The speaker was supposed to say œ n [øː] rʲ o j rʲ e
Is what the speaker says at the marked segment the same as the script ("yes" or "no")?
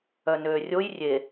yes